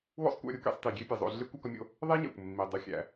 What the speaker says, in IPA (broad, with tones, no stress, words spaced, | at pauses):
wo̰˥sˤkʷæ̰˧ɾʲu˧kḛ˧sˤ ti˩ ɡʲe˥pʲe˩zˤo̰˧ ɮe˥kʷ ɒ˥kɒ˥mʲo̰˥ | ðˤe˥ɲæ̰˩kʷ mːi˩ dˤu˩xʲæ̰˩